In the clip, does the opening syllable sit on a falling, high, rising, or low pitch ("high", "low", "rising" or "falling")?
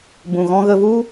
low